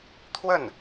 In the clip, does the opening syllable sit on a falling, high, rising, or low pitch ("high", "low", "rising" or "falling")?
falling